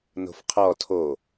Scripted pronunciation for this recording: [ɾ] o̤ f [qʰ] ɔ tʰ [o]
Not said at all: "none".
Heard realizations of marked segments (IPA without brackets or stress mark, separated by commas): n, qʰ, o